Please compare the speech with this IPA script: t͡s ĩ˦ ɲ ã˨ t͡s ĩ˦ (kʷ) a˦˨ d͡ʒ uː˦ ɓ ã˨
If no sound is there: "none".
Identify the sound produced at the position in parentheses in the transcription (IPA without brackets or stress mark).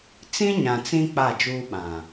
k͡p